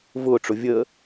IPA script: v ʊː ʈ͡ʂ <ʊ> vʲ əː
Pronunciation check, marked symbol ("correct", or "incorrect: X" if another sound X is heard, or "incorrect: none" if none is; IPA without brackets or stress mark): correct